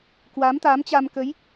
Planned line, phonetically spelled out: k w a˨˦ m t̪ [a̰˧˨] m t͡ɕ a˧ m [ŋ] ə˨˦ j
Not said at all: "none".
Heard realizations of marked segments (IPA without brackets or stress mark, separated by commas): a˨˦, k